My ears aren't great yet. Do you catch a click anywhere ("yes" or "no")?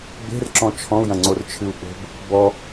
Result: yes